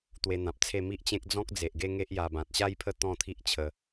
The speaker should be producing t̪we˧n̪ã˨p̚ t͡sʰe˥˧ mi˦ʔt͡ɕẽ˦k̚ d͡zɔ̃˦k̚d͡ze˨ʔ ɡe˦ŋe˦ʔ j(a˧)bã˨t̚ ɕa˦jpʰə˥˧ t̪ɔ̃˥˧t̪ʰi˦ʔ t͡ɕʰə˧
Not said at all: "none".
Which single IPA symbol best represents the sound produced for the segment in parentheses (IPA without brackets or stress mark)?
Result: a˧